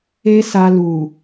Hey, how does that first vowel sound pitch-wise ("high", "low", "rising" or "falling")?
high